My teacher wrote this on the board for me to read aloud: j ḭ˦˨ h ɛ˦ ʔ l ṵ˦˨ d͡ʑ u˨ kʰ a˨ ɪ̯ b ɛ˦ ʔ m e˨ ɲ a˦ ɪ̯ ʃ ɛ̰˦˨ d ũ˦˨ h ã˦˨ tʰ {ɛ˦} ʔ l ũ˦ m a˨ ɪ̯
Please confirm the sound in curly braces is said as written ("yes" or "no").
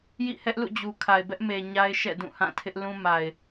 no